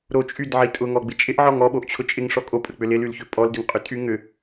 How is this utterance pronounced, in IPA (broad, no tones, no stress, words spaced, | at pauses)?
ɾot͡ʃʼydʕi tʼʊ ŋɔɡ͡bɪt͡ʃʼɪʔʕɔŋ ɔ ɓoʔt͡ɕʰʊt͡ʃʼɪŋ ʂɔkʼopʼək͡pʏ lɪlylçʏ pʼɔldʏŋqʼʏtʼy ŋʏ